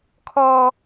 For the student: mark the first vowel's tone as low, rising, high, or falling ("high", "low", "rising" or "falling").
high